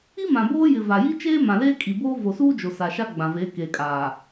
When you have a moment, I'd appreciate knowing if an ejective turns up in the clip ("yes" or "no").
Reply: yes